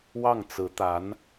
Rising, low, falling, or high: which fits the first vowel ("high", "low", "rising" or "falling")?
falling